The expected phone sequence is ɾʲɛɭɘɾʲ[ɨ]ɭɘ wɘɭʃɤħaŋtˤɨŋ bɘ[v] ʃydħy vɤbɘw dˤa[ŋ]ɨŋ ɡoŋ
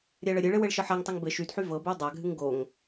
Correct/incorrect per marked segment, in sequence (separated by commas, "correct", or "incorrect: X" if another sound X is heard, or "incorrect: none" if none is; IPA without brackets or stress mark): correct, incorrect: none, incorrect: ɡʱ